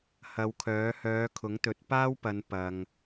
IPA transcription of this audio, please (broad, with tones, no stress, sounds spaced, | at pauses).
h ɐ˨˧ w kʰ œː˨˥ h œː˨˧ kʰ ʊ˨˥ ŋ t̪ ɵ˨˥ t̚ p aː˥ w p ɐ˨˧ n p ɐ˧ ŋ